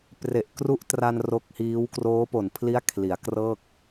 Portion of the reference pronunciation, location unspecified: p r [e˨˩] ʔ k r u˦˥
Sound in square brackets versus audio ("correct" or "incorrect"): correct